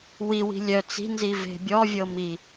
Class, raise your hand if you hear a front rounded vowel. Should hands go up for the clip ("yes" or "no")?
yes